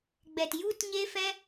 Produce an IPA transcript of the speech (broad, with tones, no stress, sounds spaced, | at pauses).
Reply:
ɡ͡b ɛ˨ t j u˦ t ɲ e˦ f ɛ˦